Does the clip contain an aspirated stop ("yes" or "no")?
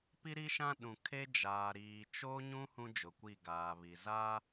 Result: yes